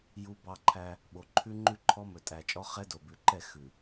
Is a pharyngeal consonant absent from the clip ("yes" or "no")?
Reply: yes